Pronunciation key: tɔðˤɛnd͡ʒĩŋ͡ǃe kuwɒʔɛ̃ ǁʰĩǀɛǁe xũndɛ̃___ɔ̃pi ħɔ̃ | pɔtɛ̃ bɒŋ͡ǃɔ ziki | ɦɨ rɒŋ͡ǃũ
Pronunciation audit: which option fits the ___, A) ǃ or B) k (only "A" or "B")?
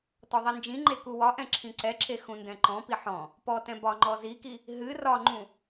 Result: A